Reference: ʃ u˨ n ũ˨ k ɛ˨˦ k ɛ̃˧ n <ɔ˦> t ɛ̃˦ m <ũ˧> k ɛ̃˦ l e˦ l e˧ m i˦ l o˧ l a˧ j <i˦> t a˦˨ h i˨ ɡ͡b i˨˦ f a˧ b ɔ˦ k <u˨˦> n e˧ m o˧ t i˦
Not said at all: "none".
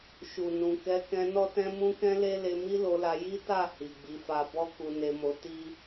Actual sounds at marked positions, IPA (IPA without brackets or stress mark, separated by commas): ɔ˦, ũ˦, i˦, u˧